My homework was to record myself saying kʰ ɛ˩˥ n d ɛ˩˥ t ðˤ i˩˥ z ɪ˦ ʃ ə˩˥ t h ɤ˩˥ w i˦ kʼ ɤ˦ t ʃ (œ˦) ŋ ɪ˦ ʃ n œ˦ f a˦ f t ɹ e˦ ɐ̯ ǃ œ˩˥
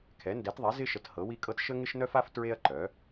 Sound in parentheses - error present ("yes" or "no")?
yes